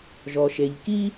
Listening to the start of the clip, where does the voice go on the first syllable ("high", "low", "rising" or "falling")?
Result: low